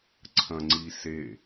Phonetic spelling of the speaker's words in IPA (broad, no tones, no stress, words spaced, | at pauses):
ǀʰɐ̃ŋ͡ǀise